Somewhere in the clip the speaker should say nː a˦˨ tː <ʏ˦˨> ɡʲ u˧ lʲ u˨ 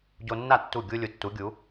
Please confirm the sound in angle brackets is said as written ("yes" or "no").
no